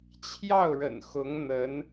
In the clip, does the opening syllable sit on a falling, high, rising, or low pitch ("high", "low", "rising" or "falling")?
falling